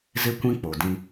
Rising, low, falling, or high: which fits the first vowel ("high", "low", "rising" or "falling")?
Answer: high